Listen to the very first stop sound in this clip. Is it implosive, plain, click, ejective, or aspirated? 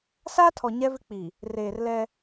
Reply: aspirated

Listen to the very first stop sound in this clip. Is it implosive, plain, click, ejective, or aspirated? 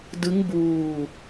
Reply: plain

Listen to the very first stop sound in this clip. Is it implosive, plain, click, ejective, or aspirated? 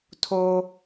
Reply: aspirated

